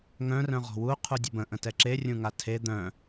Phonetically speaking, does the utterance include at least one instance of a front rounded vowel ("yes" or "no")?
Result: yes